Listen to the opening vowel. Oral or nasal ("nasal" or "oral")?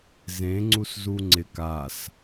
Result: nasal